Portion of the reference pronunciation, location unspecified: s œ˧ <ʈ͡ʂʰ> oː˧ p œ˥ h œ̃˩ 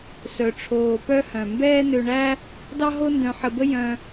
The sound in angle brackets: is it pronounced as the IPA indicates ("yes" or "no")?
yes